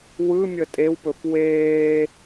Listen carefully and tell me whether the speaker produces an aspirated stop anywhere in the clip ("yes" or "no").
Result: no